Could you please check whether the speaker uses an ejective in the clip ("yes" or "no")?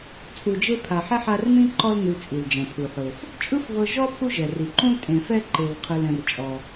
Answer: yes